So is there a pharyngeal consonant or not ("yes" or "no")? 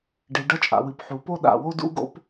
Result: yes